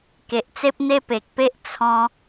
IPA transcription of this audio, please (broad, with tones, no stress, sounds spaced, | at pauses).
k e˨ ʔ t͡s e˦ p̚ n̪ e˦ p e˨ k̚ p e˦ ʔ t͡sʰ ɔ̃˦